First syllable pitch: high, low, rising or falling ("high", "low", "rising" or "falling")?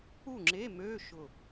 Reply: falling